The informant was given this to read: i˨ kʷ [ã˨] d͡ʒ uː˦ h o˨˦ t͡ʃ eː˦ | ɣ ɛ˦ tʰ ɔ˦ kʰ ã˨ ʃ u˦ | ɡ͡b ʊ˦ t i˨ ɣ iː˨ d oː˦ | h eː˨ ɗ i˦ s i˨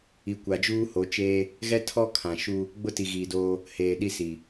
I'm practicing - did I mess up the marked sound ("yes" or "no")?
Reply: yes